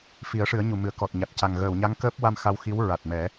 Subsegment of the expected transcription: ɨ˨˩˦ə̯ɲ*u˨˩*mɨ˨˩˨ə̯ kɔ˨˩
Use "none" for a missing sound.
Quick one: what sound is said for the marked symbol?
u˨˩˨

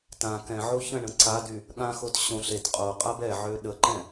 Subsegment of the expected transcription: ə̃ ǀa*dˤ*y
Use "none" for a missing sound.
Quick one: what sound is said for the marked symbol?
d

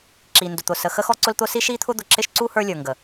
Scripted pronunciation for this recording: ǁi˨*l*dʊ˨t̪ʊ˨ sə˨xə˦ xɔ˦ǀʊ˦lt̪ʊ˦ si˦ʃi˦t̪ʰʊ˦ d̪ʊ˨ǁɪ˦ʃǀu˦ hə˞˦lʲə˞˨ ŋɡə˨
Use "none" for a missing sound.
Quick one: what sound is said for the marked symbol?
n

